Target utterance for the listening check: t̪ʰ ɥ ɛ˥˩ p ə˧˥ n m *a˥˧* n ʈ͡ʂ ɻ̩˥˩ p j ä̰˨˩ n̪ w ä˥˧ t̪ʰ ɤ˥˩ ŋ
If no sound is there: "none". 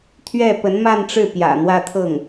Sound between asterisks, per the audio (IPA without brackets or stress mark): a˥˧